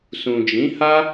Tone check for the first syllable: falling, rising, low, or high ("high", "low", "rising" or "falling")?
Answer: low